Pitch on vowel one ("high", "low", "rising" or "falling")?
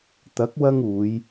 rising